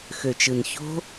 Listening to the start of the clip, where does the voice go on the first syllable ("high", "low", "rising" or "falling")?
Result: low